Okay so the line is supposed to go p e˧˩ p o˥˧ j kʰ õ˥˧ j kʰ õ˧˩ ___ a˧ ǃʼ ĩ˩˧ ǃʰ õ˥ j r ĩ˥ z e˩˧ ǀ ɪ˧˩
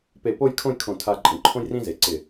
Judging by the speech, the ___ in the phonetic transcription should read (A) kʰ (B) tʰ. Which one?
B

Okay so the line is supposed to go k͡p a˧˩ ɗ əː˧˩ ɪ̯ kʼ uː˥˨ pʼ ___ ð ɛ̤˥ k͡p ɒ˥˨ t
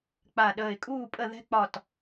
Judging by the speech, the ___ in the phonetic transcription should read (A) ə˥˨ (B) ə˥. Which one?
A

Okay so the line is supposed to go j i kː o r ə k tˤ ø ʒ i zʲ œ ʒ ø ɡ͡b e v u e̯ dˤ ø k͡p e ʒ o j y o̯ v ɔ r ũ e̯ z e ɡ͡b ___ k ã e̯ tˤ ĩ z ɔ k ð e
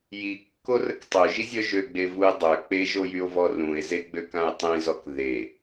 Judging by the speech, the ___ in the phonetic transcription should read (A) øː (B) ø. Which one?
B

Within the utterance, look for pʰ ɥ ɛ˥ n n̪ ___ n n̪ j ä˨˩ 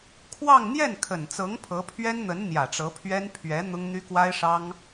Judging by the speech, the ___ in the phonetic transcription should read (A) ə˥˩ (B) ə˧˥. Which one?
B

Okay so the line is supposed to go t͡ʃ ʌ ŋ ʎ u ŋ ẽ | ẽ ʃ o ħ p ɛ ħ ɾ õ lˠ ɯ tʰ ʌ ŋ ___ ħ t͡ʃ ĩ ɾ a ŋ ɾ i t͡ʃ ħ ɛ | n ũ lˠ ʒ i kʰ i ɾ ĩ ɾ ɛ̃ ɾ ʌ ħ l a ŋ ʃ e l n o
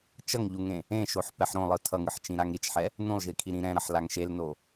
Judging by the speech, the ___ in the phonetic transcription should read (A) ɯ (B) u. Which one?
A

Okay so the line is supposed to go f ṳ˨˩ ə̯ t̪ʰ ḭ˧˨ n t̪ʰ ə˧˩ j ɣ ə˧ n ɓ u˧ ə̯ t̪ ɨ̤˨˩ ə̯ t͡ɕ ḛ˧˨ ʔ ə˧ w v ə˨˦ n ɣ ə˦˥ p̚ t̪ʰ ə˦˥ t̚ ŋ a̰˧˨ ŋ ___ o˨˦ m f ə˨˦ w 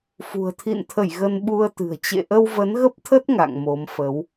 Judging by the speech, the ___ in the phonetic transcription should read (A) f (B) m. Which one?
B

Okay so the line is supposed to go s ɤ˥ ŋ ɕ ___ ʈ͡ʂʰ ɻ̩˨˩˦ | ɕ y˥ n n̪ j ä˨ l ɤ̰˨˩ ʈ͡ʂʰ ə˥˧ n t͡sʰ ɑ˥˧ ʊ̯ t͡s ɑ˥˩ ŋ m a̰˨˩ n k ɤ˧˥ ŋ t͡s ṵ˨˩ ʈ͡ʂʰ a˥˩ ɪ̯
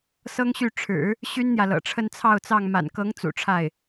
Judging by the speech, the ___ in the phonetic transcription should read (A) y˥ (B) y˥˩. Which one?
B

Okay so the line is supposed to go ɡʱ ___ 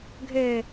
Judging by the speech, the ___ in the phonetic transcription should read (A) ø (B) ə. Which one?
A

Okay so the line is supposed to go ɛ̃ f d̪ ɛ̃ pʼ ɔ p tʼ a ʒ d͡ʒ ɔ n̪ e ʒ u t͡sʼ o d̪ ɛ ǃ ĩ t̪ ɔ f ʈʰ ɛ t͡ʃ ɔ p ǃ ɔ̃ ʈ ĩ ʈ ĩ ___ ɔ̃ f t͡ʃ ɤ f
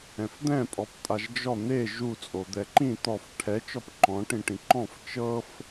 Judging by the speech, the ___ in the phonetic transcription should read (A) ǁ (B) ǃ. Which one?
B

